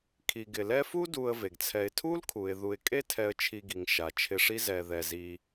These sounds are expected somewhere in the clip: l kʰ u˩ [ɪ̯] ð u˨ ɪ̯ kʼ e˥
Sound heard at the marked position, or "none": ɪ̯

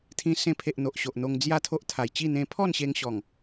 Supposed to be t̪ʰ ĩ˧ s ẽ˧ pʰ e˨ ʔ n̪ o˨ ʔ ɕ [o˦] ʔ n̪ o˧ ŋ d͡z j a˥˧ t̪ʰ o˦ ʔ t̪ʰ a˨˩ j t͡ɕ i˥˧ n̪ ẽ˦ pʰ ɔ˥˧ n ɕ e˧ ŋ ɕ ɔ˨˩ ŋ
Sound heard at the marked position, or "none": o˨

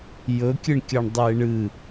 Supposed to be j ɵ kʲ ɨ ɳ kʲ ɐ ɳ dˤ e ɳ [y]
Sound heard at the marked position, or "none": ɨ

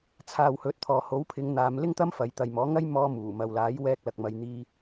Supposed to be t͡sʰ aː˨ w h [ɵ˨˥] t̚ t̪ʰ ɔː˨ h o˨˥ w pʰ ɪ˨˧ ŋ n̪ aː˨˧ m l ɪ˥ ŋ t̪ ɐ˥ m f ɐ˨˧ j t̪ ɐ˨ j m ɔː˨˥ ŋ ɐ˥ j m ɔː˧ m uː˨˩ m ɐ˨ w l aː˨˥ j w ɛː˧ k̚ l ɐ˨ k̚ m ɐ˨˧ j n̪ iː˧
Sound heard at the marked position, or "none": ɵ˨˥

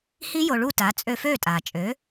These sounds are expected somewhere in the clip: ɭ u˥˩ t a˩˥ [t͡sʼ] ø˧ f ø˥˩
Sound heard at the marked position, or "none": t͡sʼ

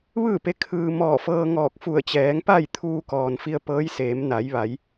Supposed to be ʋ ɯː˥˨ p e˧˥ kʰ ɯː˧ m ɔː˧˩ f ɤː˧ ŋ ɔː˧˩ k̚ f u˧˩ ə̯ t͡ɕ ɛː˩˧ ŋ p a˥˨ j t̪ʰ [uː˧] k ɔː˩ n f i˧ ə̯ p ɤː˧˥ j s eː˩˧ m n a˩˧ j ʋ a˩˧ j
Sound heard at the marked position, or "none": uː˧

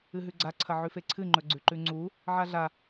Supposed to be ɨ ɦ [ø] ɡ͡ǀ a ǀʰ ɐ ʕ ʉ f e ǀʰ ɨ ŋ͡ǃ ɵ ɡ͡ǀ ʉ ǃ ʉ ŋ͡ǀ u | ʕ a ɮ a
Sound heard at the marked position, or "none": ʉ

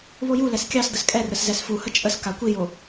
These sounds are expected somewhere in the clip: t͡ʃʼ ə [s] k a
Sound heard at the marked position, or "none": s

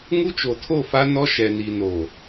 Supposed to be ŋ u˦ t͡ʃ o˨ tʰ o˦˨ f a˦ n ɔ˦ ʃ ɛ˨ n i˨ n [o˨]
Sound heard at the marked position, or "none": o˨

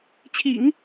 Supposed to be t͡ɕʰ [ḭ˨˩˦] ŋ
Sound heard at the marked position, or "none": ḭ˨˩˦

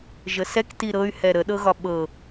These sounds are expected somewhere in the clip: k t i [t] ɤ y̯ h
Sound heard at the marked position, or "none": ɾ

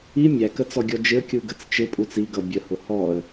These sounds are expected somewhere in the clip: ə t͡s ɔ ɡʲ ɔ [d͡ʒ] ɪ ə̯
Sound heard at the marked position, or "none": d͡ʒ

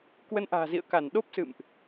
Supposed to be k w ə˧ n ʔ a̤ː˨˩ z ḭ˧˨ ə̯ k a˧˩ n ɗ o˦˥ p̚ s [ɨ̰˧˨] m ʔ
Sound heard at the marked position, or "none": ɨ̰˧˨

